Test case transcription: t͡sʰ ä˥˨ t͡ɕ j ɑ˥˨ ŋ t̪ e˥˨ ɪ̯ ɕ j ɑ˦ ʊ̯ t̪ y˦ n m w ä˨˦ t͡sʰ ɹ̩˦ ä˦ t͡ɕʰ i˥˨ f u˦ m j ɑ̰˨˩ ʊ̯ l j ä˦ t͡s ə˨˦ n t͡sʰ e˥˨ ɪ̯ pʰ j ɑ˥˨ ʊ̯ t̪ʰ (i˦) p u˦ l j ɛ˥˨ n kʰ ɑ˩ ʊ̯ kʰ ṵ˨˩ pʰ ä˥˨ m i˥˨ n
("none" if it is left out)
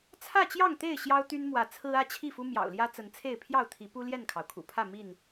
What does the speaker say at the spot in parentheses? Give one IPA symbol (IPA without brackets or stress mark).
i˨˦